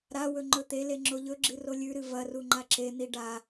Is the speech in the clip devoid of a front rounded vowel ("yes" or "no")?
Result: yes